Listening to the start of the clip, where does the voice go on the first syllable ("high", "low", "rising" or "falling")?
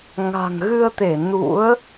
low